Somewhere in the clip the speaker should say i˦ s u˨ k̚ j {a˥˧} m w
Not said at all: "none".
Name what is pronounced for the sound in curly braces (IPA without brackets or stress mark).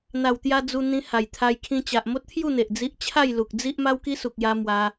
a˧